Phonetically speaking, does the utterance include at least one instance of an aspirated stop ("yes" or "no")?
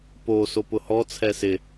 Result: yes